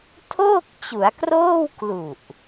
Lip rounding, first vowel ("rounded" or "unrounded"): rounded